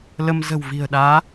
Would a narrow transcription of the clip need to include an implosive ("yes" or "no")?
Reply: yes